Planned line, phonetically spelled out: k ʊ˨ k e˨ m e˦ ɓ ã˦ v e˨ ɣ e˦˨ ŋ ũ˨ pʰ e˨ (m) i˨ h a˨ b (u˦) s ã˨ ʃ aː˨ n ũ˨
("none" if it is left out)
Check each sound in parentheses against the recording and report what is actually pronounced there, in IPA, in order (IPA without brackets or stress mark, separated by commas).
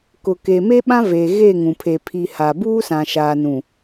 pʰ, uː˦